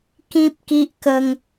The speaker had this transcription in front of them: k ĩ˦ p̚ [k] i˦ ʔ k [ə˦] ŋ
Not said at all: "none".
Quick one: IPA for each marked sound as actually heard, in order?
k, ə˦

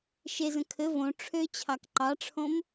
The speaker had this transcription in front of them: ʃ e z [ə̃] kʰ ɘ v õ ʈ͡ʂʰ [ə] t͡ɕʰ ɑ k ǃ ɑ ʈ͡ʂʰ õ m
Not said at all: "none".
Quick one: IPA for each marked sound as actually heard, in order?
ə̃, ø

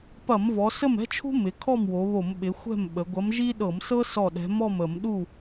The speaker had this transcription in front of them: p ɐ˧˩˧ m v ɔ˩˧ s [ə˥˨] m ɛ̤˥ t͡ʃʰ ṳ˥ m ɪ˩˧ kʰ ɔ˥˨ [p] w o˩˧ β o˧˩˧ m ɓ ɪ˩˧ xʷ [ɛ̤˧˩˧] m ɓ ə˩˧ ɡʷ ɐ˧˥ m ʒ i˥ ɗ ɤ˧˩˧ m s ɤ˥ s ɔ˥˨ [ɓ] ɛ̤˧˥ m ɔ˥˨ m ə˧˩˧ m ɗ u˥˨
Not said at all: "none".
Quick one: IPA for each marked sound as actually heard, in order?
ə˥˨, m, ɛ̤˥˨, ɗ

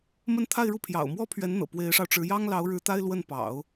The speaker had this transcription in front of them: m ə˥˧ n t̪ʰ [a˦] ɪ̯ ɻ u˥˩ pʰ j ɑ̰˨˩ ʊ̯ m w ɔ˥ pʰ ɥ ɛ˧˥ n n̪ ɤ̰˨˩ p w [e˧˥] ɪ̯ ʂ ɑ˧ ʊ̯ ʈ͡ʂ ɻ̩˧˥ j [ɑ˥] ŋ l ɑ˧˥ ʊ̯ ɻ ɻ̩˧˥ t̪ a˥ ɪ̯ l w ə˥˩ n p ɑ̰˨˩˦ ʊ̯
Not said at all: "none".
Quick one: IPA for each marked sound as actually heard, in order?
a˥˧, e˧˥, ɑ˥

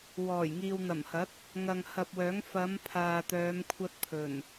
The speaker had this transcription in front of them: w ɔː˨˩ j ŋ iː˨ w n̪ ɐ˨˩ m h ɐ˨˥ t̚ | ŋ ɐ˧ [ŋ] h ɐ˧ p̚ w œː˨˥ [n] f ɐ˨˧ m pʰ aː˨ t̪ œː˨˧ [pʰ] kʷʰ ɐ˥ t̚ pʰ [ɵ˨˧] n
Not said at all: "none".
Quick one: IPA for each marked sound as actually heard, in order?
ŋ, ŋ, m, ɵ˨˩

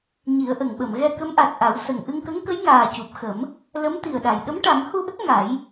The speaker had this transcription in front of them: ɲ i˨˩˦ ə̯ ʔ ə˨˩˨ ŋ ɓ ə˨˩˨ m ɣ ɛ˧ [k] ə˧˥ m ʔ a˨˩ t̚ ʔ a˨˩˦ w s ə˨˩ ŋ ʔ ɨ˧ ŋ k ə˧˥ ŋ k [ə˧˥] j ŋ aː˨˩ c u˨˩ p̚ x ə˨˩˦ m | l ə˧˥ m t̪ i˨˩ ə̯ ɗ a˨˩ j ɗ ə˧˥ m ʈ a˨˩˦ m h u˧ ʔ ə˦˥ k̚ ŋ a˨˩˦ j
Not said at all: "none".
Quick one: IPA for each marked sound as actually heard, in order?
k, ə˧˥

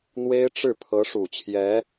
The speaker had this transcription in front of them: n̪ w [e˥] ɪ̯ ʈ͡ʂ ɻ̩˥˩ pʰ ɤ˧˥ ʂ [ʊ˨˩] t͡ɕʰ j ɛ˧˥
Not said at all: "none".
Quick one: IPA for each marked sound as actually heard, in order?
e˥, u˨˩

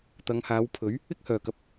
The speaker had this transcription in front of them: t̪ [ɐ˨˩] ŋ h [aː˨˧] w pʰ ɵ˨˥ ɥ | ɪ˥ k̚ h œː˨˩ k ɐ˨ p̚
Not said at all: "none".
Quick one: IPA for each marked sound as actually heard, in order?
ɐ˨˧, aː˨˧

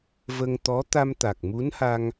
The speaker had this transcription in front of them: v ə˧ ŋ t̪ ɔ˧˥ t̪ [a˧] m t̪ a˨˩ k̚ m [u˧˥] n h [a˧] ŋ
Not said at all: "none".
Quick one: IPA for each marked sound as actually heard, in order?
a˧, u˧˥, a˧

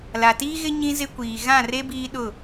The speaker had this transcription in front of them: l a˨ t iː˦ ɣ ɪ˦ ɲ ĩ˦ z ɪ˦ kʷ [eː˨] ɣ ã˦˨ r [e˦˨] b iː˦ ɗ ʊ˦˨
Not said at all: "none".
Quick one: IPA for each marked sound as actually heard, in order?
iː˨, e˦

